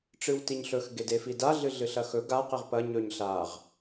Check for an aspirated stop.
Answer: absent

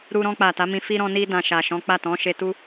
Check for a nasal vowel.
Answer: present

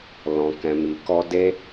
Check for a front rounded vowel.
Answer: absent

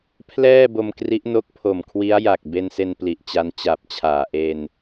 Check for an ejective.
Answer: absent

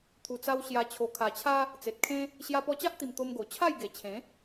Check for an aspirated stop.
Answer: present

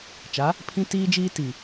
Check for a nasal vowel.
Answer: present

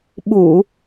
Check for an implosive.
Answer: present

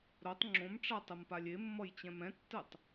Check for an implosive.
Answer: absent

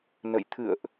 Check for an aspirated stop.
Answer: present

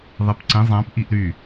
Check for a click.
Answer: present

